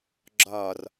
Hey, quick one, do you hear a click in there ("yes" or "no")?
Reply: yes